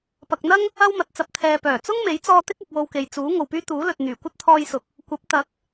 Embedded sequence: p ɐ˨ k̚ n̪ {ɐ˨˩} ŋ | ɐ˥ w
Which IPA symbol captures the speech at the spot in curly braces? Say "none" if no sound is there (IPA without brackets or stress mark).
ɐ˥